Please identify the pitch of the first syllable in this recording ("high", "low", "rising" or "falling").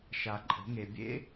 low